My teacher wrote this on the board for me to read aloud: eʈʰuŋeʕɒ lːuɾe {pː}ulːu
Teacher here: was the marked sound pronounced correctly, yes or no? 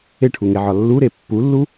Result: yes